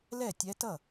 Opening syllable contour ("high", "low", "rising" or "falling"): falling